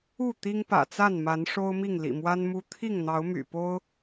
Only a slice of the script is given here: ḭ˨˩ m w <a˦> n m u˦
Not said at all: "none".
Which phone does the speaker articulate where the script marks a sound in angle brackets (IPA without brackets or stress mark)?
a˦